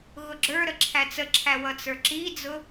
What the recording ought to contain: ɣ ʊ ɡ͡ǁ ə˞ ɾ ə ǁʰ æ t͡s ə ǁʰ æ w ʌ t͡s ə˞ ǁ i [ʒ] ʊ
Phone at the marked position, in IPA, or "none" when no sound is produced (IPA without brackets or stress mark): d͡z